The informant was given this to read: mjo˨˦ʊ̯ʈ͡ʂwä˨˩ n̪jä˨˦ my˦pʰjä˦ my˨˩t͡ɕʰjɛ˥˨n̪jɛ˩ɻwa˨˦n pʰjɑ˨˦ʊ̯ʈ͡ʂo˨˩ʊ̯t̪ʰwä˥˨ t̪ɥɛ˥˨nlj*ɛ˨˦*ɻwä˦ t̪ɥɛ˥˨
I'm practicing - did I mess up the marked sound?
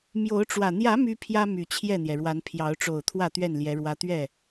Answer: no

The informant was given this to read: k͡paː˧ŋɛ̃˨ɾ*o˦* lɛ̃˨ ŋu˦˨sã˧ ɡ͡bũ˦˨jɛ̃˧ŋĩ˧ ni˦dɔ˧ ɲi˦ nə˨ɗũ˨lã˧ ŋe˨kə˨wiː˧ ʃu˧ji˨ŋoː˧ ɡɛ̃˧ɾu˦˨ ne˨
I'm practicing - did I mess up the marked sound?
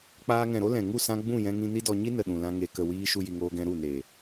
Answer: no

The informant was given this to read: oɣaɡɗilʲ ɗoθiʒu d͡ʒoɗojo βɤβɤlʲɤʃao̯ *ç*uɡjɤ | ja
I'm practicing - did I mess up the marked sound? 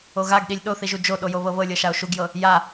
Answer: yes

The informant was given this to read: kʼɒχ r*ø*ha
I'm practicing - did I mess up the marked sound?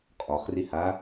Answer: yes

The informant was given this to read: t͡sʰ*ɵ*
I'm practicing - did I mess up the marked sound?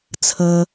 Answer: yes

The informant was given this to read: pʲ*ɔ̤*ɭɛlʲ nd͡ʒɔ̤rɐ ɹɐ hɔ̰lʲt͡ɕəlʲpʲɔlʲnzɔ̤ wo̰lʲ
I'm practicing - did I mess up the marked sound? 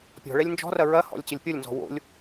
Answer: no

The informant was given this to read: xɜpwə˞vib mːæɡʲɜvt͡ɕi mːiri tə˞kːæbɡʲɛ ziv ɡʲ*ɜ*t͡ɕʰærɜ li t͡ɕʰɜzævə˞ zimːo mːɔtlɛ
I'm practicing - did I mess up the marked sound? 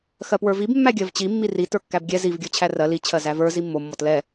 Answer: yes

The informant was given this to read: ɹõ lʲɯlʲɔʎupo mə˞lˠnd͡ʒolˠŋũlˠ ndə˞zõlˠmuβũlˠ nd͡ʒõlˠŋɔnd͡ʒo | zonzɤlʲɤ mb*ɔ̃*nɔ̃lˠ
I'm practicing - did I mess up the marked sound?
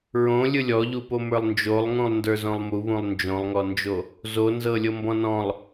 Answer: no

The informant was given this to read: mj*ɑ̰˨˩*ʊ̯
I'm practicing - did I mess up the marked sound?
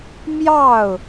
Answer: yes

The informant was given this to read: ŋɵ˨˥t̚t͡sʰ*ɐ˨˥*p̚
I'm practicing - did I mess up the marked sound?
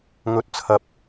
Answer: no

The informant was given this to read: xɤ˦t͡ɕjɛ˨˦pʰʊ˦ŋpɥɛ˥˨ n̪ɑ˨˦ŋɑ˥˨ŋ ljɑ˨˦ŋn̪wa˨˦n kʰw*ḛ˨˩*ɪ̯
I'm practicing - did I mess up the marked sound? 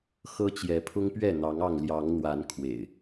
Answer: no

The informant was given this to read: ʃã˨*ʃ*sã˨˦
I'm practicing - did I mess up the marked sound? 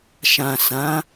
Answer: yes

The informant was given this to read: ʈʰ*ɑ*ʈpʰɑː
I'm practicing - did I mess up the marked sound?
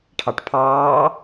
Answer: no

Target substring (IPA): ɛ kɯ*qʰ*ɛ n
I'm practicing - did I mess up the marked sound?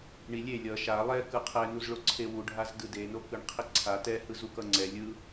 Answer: no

